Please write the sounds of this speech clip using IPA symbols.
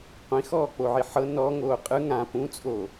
qʷ ĩ x ɔː k͡p o ʕ i ħ ɤ n ɔ ŋ oː qʼ ɯ ŋ ã p ũ t͡sʼ oː

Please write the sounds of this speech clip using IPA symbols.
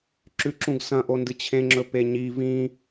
ǁ ʉ ǁ ũ ɡ s ɐ̃ ʔ o n d ɨ t͡ɕʰ ẽ ŋ͡ǁ ɵ p e ɲ i v ĩ

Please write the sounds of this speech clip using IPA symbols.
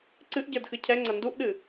ǀ ɨ ʔ ɟ ə˞ d x ɨ cʰ ɛ ŋ͡ǀ ɐ n d u ʔ ɗ ɨ

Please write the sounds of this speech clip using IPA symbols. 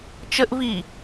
t͡ʃ ə ʔ v i

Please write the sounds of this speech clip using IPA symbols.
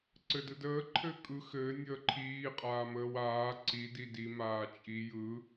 ǀ ɘ d ɯ d əː ǃʰ ɘː kʼ ɯ x ɘː nʲ əː ǃʰ iː qʼ aː m əː w aː ǀ i d i d i m aː t͡ʃʼ i j ɯ

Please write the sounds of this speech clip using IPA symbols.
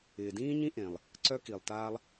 ɪː˩ d ĩː˥ ɲ ĩ˥ ʔ ẽ˩ lˠ | ǀ œ˥ k i˩ lˠ t aː˥ lˠ

